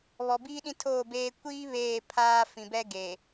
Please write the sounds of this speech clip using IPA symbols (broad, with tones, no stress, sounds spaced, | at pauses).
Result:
β ɔ˨ b iː˦ ɗ ĩ˦ tʰ oː˦˨ b eː˦ kʷ iː˦ β eː˦˨ pʰ aː˦ f ĩ˨ b ɛ˦ ɡ e˨